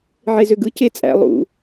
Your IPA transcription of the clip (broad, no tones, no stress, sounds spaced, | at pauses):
ʕ e z ø ɡ ɯ c e t͡sʼ æ̰ lˠ ṵ